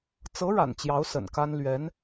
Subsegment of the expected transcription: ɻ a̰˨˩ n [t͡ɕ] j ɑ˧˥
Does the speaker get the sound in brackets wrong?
no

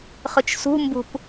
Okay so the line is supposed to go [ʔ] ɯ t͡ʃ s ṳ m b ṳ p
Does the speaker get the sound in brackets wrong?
yes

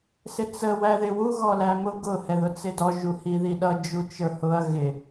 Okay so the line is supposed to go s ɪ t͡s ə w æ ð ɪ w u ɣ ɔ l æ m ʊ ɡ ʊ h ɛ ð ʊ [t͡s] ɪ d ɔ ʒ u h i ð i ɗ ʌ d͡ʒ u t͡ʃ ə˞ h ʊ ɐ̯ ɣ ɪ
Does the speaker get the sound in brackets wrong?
no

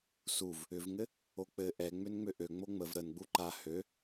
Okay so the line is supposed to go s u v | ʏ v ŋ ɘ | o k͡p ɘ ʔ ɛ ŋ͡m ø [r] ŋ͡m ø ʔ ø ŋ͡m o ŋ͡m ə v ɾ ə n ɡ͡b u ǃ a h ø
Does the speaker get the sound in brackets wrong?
yes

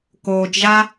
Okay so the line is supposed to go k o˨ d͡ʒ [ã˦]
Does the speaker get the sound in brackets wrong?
yes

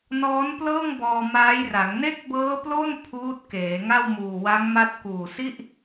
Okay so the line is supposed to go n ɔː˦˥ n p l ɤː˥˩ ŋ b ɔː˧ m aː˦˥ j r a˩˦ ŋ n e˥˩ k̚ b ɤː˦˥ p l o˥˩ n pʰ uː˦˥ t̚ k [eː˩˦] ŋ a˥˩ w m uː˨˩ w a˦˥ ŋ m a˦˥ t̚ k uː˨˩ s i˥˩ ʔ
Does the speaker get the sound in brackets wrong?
no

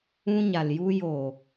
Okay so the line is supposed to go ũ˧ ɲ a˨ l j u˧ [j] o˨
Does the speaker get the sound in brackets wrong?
no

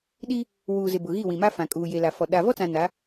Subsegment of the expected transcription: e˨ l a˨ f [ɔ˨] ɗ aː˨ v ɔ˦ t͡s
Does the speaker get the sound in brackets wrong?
no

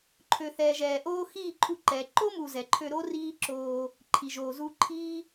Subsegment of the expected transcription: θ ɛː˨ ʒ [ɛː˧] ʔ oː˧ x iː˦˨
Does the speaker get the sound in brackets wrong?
yes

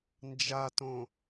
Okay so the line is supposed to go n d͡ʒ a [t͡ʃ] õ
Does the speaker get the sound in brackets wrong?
yes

